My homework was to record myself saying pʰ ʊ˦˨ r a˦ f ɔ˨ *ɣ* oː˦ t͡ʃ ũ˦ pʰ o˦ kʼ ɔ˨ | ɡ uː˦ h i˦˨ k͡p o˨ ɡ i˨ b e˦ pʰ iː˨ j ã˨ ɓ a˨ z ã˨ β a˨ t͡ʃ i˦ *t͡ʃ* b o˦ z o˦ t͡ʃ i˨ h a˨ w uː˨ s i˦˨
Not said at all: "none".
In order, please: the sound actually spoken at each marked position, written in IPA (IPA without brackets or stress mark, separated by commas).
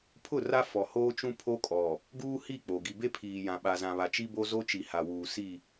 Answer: h, none